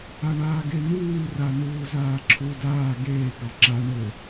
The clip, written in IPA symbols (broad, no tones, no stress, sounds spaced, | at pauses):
a ɳ aː ɡ e n̪ uː r a n̪ uː z aː ǁʰ u d aː ɡ eː ɡ ɑ ǁ a ɳ ɘ